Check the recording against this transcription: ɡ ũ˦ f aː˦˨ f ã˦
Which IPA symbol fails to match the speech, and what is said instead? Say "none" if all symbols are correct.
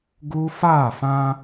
ũ˦ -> u˦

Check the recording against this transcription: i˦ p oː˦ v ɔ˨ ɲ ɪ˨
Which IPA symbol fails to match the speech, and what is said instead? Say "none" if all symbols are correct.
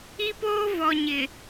none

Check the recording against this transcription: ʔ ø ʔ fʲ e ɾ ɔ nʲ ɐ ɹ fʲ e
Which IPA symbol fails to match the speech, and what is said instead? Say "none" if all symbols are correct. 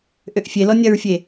ɾ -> l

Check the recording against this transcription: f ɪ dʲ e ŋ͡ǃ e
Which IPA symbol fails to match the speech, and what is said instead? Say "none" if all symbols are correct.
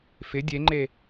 none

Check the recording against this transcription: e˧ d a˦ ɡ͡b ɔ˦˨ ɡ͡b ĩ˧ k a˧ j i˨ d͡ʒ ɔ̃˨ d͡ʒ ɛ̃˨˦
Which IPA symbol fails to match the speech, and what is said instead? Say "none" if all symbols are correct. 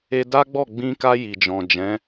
none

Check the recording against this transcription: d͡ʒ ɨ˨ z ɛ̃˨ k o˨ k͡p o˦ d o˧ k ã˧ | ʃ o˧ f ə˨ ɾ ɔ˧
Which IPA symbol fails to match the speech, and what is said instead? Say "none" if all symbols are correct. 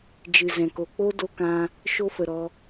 none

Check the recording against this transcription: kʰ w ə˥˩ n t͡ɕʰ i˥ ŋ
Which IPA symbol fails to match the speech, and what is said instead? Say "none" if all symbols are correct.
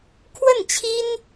ŋ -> n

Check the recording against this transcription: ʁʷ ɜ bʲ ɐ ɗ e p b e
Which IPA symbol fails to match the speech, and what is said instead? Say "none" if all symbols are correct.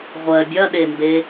p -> m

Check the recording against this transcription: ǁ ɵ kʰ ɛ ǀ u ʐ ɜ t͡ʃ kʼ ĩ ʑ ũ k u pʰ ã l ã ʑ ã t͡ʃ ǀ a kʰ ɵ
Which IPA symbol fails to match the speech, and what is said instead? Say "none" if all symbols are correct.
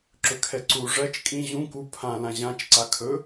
none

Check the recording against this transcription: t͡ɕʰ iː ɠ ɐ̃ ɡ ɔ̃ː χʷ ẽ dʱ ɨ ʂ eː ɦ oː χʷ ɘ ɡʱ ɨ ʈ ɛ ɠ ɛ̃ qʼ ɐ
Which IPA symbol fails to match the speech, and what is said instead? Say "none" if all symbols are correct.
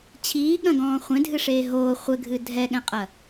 ʈ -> dʱ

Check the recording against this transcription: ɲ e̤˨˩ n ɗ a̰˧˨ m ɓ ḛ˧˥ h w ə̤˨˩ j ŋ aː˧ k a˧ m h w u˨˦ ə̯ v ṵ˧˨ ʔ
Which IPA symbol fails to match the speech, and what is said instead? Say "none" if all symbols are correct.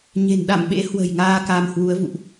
none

